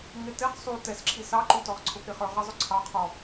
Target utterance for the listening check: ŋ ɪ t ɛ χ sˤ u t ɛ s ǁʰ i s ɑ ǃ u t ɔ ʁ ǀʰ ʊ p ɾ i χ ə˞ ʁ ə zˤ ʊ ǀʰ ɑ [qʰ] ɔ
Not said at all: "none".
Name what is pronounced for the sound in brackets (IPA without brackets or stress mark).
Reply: qʰ